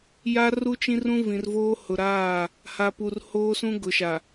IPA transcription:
ja˦ru˦t͡ʃĩ˦ rũ˦ vĩ˨rvoː˦ hʊ˨ɾaː˦˨ | ha˨pu˨rhoː˦sũ˦ ɡʊ˨ʃa˨

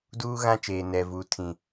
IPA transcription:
duː˦ɣã˦t͡ʃeː˨ nɛ˨vuː˨ tʰĩ˨

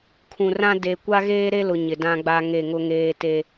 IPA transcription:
kʰũ˨rã˦ de˨ kʷa˦ɣeː˦ɾe˦lʊ˨ ɲɪ˨dã˦ɡ͡ba˦ ŋe˦˨ŋʊ˦ŋeː˦te˦

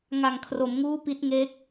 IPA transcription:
ŋa˨˩ŋ kʰro˩˦mŋuː˦˥ pi˦˥t̚ ŋe˦˥k̚

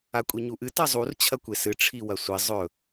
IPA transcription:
akʷʼiɲuʔɨ tɐzˤur t͡ɕʰɐkʷesɨ ʈ͡ʂʰiwɐsʷi zˤɵ

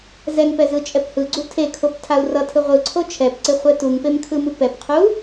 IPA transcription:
zɛŋpɛ zɯt͡ʃʼɛphɯɡ͡ǀu tʰekʰop tʰau̯rʌtʰɯ ʁʷɯǀʰo t͡ʃʰɛpǀe χʷɛtuŋpem kʰɯmupɛpqʰu

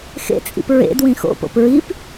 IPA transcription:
xḛt͡sʼḭp ɹḛd wĩxo̰po̰p ɹip

